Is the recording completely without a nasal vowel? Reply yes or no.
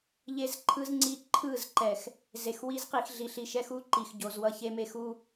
yes